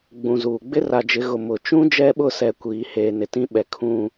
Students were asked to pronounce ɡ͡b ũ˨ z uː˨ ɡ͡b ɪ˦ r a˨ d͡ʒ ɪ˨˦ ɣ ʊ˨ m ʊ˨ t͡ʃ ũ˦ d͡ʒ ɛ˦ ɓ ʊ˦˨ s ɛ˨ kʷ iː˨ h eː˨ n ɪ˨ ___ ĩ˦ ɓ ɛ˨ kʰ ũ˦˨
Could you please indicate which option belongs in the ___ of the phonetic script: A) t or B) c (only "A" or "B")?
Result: A